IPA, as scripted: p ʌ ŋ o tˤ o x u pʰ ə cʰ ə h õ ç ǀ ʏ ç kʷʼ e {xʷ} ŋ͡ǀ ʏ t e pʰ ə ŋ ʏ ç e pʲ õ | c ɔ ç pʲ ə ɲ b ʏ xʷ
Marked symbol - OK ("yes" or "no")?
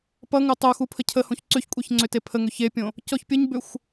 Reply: no